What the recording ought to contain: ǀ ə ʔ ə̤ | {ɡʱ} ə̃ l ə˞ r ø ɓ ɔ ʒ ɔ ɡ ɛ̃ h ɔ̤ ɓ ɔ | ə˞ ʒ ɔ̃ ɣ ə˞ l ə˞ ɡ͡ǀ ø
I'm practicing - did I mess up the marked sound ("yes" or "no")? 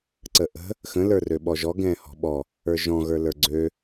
yes